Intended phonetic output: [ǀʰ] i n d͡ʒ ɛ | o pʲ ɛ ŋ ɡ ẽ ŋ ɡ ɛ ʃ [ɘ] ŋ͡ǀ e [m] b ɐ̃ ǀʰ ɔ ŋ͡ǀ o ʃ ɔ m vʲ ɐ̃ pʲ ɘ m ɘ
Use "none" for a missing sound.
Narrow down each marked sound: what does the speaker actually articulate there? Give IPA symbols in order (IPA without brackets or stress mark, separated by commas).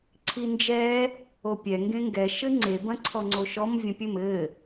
ǀʰ, ɘ, none